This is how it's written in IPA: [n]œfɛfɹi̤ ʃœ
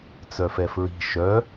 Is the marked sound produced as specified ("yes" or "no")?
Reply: no